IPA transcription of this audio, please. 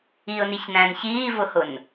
iʊ̯niçnæ̃n çiːvʊhʊn

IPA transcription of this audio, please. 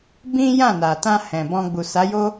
bĩ˦jã˦˨na˨tã˧ hɛ̃˨bɔ̃˧ɡ͡bu˨ sa˨˦jo˦

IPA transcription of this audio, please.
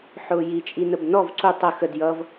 ħʊːjit͡ʃʼinəb nɔv ǀu tˤə xəd jʌv

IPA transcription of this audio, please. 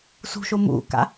sṳʃo mṵka̰

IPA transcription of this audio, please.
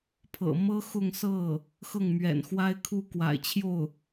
pʰɤ̰˨˩ mɤ˥ xʊ˥˧ŋsɤ˥˩ | xɤ˥˩ŋ mɥɛ̰˨˩nxwa˥ɪ̯kʰu˥˩kwa̰˨˩ɪ̯ t͡ɕʰjo˥˩ʊ̯

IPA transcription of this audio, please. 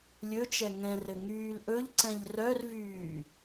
lʲɵt͡ʃɛ ŋɛ̃rɘ ŋyːlʔɵʎǀɛ̃ʎ rœrvyː

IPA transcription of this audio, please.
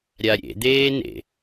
ɾʲaɾʲḛ d̪eːnḛ

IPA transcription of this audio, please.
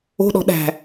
o̤ɗɔ̤ ɗæ̤

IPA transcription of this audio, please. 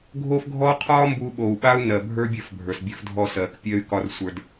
ɡʱo˦fɡʱɔ˦qʰɒː˦ mbu˦ ɓo˨u̯ɓaː˦u̯nɜ˨bʱə˞˦ bʲɜ˦˨fbʱə˞˨sbʲə˞˦f dʱɔ˦sɜː˨kpʲɜ˦y̯kɒ˦r sʷə˞˦d

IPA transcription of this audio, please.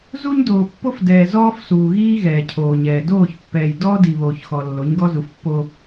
zu˦ɲdoː˨pːo˦f dɛː˨ zɔː˦fsuː˨ɣiː˦ ɣɛː˨cʰoː˨ɲɛː˨ doː˦˨çpːɛː˨j dɔː˦di˨βoː˨çxɔ˨ lːo˨˦ɲɡɔ˦zu˨fpːo˦

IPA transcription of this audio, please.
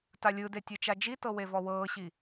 talʲɯde tʲɯt͡ʃad͡ʒitɤ wevɔwɤːɕi

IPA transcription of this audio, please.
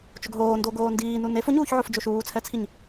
t͡ʃʊɡɦoː ndoɡoːndiː nunef ʊɲuːçʕʊf d͡ʒoʃuːt͡sʰɛt͡sʰiɲ

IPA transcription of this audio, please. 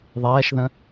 ðˤɛːʃðə̃

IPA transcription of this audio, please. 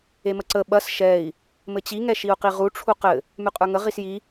eməǀə ɓɐs ʃɛi̯ | mɘt͡ɕi ŋɛʃiu̯qiʁu ʈ͡ʂʰuqɘ | mʉqʼə˞ŋə ʁisji

